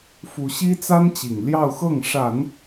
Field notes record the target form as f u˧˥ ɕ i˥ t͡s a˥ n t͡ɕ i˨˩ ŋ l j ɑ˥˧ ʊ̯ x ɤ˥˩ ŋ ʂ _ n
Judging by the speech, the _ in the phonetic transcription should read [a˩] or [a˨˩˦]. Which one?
a˨˩˦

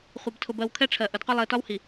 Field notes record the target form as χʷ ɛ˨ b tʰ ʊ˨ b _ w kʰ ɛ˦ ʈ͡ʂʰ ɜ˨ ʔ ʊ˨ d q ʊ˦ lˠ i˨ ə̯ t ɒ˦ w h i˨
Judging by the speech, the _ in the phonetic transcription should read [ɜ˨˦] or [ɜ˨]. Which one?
ɜ˨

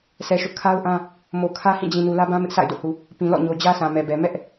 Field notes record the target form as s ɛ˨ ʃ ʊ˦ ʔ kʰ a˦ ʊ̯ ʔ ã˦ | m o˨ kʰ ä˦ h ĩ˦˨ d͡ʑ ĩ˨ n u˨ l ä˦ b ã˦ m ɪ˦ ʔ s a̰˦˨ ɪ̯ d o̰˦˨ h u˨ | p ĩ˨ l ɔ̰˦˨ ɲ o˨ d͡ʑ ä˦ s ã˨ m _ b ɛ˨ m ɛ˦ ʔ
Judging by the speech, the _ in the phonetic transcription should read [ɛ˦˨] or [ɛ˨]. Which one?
ɛ˨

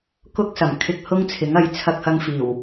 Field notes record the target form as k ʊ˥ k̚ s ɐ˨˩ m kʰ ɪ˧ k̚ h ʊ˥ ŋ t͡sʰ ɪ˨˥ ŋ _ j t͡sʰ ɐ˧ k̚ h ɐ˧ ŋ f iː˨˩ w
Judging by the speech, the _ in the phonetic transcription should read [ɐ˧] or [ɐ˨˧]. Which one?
ɐ˨˧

